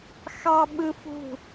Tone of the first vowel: high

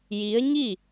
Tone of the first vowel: rising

